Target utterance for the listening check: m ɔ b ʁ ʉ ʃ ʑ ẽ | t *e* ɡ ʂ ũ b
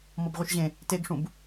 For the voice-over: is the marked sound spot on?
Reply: yes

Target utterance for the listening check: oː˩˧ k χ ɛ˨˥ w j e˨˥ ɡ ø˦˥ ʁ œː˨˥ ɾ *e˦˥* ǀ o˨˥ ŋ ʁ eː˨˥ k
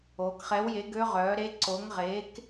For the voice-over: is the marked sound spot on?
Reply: yes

